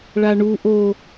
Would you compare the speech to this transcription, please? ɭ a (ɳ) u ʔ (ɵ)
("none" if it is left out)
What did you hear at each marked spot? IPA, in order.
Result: ɳ, o

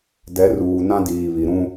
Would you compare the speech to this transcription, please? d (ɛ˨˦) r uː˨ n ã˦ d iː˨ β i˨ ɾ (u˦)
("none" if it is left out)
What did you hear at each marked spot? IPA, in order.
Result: ɛ˨˦, ũ˦

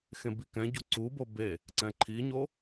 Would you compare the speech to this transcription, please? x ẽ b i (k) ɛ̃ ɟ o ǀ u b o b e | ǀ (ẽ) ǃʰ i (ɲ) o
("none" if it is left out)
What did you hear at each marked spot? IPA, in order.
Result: k, ɛ̃, ɲ

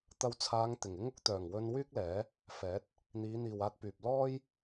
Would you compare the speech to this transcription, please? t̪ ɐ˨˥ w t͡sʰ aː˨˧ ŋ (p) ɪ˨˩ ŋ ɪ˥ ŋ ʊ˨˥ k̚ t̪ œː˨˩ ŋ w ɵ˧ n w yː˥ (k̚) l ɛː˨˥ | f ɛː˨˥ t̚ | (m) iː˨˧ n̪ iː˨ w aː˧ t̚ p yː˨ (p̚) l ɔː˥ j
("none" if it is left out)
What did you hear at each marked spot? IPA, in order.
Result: t̪, k̚, n̪, p̚

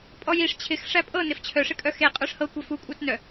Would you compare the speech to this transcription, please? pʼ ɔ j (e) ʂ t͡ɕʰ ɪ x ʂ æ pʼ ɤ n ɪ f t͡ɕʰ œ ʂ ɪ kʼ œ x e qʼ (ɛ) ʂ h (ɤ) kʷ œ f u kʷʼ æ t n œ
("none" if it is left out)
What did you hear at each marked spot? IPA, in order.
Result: i, œ, ɤ

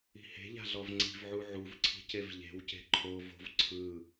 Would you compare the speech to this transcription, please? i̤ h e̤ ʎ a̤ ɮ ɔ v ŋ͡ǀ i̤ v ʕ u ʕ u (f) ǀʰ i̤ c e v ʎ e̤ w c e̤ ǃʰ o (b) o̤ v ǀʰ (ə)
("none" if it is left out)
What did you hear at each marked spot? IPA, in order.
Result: v, v, ɯ

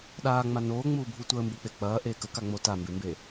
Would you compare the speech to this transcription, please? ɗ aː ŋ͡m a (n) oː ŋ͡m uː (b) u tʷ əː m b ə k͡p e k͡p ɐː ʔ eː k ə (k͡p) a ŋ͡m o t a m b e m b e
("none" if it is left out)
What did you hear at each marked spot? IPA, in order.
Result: n, bʱ, k

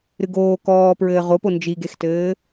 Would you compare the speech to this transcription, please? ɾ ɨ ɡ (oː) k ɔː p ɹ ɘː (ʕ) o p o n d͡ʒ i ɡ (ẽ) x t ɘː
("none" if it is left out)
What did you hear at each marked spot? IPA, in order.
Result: oː, ʁ, e

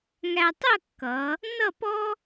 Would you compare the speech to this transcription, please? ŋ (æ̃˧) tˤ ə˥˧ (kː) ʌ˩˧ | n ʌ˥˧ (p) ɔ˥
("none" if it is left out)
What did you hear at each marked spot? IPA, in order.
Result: æ˧, kː, p

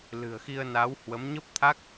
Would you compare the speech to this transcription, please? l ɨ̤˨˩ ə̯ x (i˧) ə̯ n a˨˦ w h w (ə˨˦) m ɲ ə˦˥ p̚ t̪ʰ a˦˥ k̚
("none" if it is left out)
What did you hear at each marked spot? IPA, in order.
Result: i˧, ə˨˦

